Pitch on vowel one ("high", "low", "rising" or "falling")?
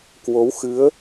rising